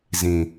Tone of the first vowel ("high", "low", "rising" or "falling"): low